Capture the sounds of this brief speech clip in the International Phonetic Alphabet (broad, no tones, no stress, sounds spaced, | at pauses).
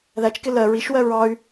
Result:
ð æ t͡ʃ k ɪ l ɜ ɹ i ʃ w ɜ ɹ ɑ y̯